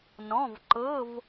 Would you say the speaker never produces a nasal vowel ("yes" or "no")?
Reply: no